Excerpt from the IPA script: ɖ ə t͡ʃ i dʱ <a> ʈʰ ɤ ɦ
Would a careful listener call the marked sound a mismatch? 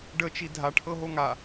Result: no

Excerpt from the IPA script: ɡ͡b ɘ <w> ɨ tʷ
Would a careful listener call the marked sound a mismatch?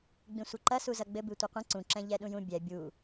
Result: yes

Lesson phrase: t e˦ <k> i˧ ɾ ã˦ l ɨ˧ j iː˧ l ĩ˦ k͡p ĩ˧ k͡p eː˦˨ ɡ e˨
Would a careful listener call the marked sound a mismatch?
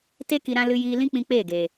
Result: no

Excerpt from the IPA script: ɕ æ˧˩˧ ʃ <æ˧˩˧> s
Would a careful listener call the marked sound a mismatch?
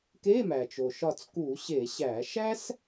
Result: yes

